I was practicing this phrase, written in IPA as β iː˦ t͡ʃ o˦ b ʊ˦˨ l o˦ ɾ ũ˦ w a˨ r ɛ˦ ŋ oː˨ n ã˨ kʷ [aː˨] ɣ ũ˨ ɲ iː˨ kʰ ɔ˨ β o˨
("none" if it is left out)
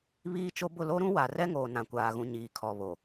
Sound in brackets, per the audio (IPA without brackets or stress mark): aː˨